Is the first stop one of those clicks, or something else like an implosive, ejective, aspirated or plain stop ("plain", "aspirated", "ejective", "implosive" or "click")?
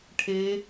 aspirated